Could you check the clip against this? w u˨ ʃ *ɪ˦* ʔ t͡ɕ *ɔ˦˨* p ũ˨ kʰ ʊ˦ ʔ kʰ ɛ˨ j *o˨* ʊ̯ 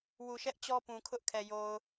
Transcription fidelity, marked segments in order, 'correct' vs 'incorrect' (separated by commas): incorrect, incorrect, correct